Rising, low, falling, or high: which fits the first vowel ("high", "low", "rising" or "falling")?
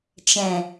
low